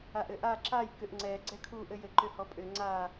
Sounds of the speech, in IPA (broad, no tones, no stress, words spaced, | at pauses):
aʔɘʔa ǁaj kʏʔŋ͡ǀɛ ɡ͡ǀɛkʰu ʔɘjɘ ǃʏhɔpʼʏ ŋ͡ǀa